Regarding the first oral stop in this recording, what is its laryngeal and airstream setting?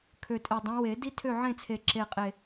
aspirated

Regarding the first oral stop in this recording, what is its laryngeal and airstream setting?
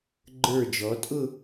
click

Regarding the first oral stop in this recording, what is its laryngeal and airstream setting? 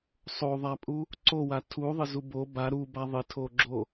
ejective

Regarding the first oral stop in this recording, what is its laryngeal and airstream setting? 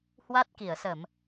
plain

